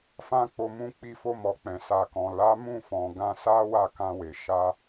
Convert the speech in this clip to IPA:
fã˦k͡po˧ mũ˧ k͡pi˧fo˧mɔ˨k͡pɛ̃˨ sa˨kɔ̃˨ la˨˦ mũ˦˨fɔ̃˨ ɡã˧sa˦ wa˦˨kã˧we˨ ʃa˧

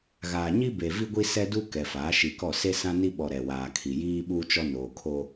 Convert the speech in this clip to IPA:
ɣaː˨ɲi˦be˨vi˦ ɡʷi˦sɛ˦du˦ kɛ˨faː˨˦ʃi˨kɔ˦˨ se˦sã˦ni˦ɓɔ˨ ɾɛ˨waː˨kʰi˨ jiː˦ɓu˦t͡ʃɔ˦ noː˨kʰoː˦

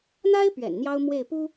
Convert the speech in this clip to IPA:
n̪a˥ɪ̯ pɥɛ̰˨˩nn̪jɑ˥ʊ̯ mwe˥˩ɪ̯pu˥

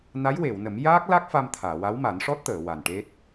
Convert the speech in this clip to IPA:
na˧˥jwe˨˩˨wnə˨˩˦mjaː˦˥k̚ la˦˥k̚ fa˧mt̪ʰaː˨˩˨ wa˧˥wma˨˩˦nʂɔ˦˥t̚t̪əː˨˩˨ wa˨˩nʈe˦˥t̚

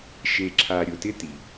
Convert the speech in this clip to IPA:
ʃe˨ǁʰa˨ ɾʲʊ˨tɪ˦ti˩

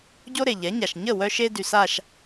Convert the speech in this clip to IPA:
ɟo˥ɾe˩ʎɛ˩˥ɲa˩ʃ ɲə˥˩wœ˧ʃe˧ dy˩sa˥˩ʃ

